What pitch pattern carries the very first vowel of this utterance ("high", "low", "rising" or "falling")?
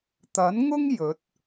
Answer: rising